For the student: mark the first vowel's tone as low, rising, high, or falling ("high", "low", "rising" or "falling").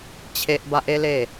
high